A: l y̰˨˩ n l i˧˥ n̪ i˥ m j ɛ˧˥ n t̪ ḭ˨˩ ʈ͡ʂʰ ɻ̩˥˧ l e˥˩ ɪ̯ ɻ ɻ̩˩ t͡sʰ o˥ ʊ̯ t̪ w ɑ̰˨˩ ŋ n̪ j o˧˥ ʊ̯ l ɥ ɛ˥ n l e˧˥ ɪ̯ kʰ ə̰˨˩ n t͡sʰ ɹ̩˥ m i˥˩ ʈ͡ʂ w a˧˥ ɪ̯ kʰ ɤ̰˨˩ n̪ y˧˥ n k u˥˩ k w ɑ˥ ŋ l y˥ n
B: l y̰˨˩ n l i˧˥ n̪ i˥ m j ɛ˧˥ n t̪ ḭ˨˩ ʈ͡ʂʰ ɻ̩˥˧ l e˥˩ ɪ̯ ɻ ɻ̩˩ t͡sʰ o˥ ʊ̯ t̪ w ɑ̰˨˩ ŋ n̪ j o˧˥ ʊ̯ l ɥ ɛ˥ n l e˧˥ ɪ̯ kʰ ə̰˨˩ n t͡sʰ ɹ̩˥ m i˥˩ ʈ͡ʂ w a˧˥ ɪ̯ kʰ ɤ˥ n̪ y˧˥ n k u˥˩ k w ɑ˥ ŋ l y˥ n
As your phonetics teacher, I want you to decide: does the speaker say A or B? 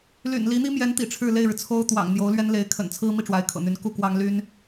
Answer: A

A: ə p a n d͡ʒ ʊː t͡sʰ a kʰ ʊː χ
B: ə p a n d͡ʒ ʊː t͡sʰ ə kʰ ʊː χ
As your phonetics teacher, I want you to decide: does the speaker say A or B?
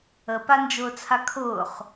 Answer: A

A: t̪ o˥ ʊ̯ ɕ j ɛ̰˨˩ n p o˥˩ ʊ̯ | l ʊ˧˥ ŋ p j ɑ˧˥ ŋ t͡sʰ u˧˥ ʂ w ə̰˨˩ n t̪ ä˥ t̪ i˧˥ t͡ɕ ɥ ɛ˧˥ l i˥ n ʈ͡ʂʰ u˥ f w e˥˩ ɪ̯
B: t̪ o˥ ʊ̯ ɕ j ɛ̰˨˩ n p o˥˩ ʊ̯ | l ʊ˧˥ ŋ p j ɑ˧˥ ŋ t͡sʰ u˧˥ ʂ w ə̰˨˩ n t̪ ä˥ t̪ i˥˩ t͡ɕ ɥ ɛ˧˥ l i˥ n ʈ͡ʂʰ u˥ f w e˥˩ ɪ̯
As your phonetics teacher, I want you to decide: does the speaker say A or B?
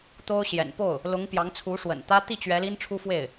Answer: B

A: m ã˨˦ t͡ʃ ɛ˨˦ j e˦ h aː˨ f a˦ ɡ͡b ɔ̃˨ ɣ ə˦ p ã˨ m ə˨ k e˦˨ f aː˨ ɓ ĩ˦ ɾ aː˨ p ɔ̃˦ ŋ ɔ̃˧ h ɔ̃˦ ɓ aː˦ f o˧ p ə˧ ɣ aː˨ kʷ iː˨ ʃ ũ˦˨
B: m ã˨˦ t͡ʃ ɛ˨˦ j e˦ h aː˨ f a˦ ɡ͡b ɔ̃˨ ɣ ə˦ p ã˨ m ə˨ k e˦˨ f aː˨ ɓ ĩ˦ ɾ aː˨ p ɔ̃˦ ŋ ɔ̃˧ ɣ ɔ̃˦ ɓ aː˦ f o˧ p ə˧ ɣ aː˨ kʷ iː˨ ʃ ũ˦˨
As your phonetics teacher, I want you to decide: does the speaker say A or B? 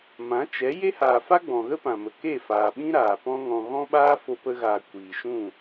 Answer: B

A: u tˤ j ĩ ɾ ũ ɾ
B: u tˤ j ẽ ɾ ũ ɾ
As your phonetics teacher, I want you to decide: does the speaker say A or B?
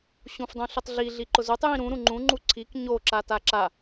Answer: A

